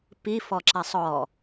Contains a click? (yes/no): yes